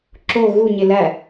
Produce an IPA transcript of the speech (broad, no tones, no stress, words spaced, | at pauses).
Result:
ǁo ɣuɲe læ